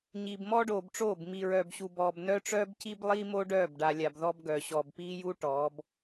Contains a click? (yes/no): no